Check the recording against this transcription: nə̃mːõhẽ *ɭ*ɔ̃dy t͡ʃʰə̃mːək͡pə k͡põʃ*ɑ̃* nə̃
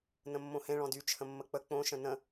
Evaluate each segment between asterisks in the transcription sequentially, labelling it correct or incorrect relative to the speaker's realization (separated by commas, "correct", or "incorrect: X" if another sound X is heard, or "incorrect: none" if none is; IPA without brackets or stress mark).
correct, incorrect: ə̃